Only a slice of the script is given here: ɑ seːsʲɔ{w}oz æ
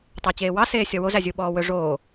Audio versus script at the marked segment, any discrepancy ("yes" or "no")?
no